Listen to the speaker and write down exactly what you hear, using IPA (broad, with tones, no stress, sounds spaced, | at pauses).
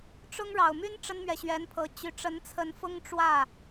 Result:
ʈ͡ʂ ʊ˥ ŋ ɻ ɑ˨˩ ʊ̯ m y˥ n ʈ͡ʂ ə˥ n m ɥ ɛ˨ ɕ ɥ ɛ˧˥ n pʰ ɤ˧˥ t͡ɕ y˨˩ ʈ͡ʂ ə˧˥ n t͡sʰ ə˧˥ n f ʊ˥ ŋ ʈ͡ʂ w ä˥˩